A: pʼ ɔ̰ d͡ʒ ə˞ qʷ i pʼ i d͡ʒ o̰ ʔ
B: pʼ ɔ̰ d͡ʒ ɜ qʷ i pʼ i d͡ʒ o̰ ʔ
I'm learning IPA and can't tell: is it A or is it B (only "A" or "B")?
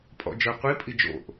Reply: A